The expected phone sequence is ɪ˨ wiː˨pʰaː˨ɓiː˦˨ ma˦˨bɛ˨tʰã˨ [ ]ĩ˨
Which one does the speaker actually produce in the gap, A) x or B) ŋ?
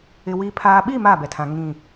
B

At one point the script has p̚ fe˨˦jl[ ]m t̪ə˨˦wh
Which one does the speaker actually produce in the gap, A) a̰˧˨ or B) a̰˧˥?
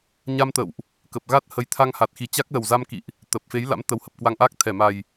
B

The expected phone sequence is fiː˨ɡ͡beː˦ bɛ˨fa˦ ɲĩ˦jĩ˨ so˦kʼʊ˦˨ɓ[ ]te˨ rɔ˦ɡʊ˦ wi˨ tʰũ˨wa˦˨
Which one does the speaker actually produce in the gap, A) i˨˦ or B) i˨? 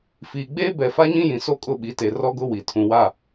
A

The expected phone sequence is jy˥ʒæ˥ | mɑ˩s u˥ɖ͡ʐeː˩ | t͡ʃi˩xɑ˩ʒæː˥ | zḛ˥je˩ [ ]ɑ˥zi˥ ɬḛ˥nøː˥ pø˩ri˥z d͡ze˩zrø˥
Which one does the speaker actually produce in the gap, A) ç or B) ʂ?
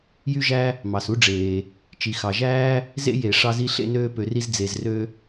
B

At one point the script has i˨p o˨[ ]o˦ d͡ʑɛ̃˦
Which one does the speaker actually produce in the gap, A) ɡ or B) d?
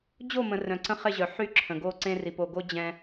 A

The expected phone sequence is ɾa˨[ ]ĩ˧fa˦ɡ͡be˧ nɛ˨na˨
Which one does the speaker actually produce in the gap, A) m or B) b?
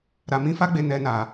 A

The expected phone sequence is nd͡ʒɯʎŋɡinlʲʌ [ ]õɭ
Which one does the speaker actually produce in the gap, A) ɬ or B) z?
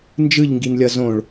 B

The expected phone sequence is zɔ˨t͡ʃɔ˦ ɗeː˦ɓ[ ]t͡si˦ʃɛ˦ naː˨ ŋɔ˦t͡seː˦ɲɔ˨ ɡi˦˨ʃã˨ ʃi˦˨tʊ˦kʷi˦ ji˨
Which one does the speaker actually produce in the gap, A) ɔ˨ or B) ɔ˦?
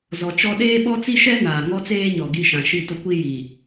B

